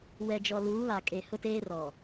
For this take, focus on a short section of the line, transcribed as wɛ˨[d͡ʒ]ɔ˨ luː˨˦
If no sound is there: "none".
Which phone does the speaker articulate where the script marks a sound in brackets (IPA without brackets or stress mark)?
d͡ʒ